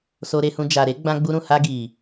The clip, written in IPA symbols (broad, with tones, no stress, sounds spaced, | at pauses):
s o˧ ɾ e˧ h ũ˧ d͡ʒ a˨ ɾ e˨˦ ɡ͡b ã˧ ɡ͡b u˧ ɾ ũ˨ h a˧ ɡ i˨